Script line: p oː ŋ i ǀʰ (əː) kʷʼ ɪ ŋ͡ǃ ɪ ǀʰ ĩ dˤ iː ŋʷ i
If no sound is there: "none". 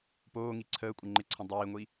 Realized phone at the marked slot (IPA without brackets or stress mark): əː